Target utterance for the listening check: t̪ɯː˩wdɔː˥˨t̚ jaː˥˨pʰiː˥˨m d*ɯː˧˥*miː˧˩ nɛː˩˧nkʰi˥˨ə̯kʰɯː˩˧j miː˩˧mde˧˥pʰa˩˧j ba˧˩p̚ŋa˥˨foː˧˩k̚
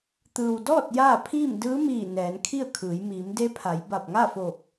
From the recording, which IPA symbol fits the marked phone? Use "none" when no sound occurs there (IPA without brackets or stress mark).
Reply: ɯː˧˥